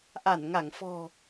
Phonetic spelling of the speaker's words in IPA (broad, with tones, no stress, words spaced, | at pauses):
ʔa˧˩nŋa˧˩ŋfɔ̤˨˩